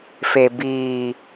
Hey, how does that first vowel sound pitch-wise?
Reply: low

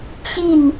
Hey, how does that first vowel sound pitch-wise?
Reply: falling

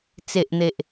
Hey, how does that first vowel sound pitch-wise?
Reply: low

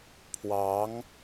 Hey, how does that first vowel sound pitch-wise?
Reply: rising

